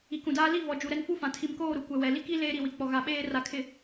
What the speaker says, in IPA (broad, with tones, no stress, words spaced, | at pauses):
i˨kũ˨daː˦ li˦˨vɔ˨ d͡ʒu˨ɾɛ˦n fu˦fã˨ tʰi˨mkoː˦˨ ɾu˨kʷɛ˨ wɛ˨ li˦ki˦ leː˦ɾi˨wi˨ k͡pɔ˨ɣa˨ɓeː˦ ra˨ kʰɪ˨